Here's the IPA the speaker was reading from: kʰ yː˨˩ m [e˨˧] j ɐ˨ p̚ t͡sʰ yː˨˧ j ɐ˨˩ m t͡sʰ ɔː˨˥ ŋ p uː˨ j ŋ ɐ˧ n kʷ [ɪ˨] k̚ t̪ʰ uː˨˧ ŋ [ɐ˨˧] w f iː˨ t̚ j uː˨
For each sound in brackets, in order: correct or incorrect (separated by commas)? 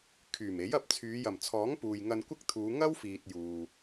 incorrect, incorrect, incorrect